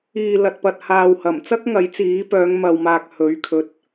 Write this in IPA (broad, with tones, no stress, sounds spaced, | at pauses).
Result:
iː˨ l ɐ˨ t̚ p ɐ˨ t̚ h aː˨ w h ɐ˨˩ m t͡s ɐ˥ k̚ ŋ ɐ˨˥ j t͡s iː˨˥ p œː˨˧ ŋ m ɐ˨ w m aː˨ k̚ h ɵ˨˥ ɥ kʰ ɵ˧ t̚